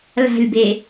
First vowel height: low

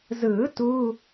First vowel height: high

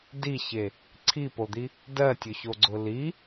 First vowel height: high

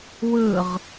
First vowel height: high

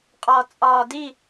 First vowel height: low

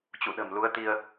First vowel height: high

